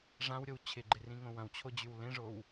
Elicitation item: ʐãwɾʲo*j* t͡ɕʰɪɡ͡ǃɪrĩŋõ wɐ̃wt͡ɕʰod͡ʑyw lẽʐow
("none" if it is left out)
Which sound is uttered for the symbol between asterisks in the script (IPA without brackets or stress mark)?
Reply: w